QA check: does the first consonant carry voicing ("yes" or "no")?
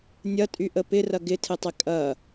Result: yes